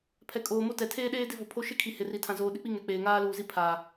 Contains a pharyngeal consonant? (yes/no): no